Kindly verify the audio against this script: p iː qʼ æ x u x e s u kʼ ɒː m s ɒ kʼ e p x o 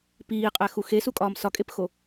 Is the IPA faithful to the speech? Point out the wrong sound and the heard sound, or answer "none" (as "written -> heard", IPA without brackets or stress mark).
none